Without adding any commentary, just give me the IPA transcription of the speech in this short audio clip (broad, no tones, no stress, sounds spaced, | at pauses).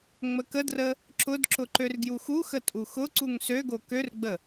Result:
ŋ͡m ə k ə d r ə | ǁ ʊ d ǁ ʊ ǃ ø r ɡ j u x u x ə tʼ u x ʊ ǀ u ŋ s ø ɡ o k ø r ɡ͡b ə